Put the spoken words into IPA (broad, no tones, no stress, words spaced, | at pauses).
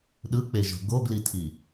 ɗɯk͡peʒo̤ ɡoɡlitʰi